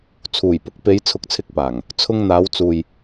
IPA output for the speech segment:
t͡sʰ uː˨˩ j p ʊ˨˥ k̚ p e˨˧ j t͡sʰ ʊ˨˥ k̚ t͡sʰ ɪ˧ k̚ p aː˨˩ ŋ | t͡sʰ ʊ˧ ŋ n̪ aː˨˧ w t͡s uː˨ j

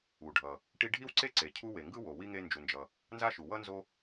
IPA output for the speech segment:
u˩ ɖʱ ʌ˩ | ʈ i˦ ɖʱ i˥ w ǀ e˥ ǀ e˩ cʰ u˦ w e˩ ŋ ɡ ɯ˥ w o˩ w i˥ ŋ e˦ n d͡ʒ u˨ n d͡ʒ ʌ˨ | n z a˥ ʃ u˩ w ʌ˥ n z o˦

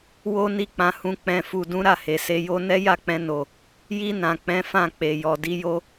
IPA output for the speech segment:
w o˦ n i˦˨ k͡p ã˧ h ũ˧ k͡p ɛ̃˨ f u˨ d ũ˨˦ ɾ a˦˨ h e˨ s e˧ j o˦ n ɛ˦ j a˦˨ k͡p ɛ̃˧ n o˨ | j i˧ n ã˨ k͡p ɛ̃˨˦ f ã˦˨ k͡p e˨ j ɔ˨ d i˧ j o˧

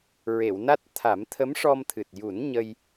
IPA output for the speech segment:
ɹ e˨˩˨ w n a˦˥ t̚ t̪ʰ a˨˩˦ m t̪ʰ ə˧˥ m ʂ ɔ˧ m t̪ʰ ɨ˨˩ t̚ j u˨˩˦ n ɲ ə˧ j

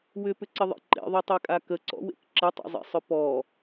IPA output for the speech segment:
w ʏ p ʏ ǀ ɪ ðˤ ḛ ǃ ḛ ðˤ ø tˤ e kʼ a k ə ǀ ɔ̰ w ḛ k ǁ ɪ tˤ ḛ zˤ ḛ sˤ ʏ p ɔ

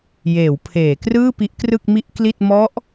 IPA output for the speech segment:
j eː˩˦ w pʰ eː˩˦ k r ɯː˥˩ p i˦˥ ʔ k r ɯ˥˩ k̚ m i˥˩ ʔ k l i˥˩ t̚ m ɔ˦˥ ʔ

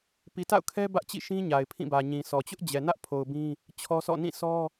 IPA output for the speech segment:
p i˨ t a̰˦˨ ʊ̯ kʰ ɛ˦ b ä˦ ʔ t͡ɕ ḭ˦˨ ʃ ĩ˦ ɲ a˨ ɪ̯ pʰ ĩ˦˨ b ä˨ ɲ ĩ˨ s ɔ˨ t͡ɕ ʊ˦ ʔ d͡ʑ ɛ˨ n ä˦ ʔ pʰ o˨ ʊ̯ b ĩ˦ | t͡ɕʰ ɔ˦ s ɔ̰˦˨ n ĩ˦˨ sʰ ɔ˦

